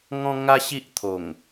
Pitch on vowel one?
high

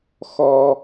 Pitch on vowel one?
high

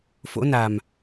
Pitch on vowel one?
rising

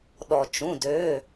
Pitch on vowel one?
low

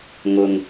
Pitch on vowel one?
low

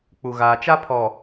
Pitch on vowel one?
low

